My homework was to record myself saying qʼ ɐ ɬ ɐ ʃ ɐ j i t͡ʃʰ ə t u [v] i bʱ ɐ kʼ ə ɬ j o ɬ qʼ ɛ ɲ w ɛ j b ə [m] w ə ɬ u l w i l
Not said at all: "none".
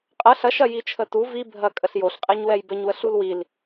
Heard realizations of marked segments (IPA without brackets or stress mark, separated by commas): v, ɲ